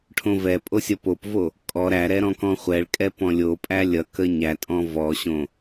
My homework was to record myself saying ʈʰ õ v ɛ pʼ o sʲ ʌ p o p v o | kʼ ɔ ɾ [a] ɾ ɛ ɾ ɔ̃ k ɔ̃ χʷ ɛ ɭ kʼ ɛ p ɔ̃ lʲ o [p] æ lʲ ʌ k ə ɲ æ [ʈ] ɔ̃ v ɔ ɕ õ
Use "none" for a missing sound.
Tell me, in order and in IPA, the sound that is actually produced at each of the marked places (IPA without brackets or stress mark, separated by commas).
æ, pʼ, tʼ